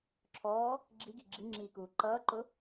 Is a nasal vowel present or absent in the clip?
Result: absent